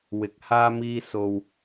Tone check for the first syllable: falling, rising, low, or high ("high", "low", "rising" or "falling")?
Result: rising